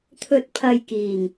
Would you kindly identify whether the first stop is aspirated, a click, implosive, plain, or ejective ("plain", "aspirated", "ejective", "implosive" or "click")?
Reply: aspirated